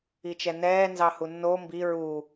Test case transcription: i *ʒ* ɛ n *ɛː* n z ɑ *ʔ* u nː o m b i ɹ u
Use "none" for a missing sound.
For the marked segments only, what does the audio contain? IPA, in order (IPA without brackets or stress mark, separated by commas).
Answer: t͡ʃ, ɛː, h